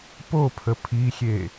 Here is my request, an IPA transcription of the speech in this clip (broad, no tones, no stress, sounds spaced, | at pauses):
p o pʰ ə pʰ i xʲ e